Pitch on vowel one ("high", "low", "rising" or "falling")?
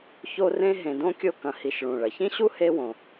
high